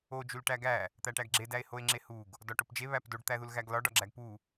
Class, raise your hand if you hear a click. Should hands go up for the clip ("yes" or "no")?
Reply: yes